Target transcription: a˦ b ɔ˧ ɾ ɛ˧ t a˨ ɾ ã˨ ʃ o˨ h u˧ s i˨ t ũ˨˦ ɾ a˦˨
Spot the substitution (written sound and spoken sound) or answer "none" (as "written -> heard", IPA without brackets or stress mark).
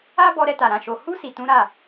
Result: none